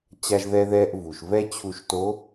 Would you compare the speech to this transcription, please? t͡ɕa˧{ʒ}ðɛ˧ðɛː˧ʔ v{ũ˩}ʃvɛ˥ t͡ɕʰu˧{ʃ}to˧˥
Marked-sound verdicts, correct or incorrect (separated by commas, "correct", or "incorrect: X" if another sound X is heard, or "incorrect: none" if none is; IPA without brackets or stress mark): correct, incorrect: u˩, correct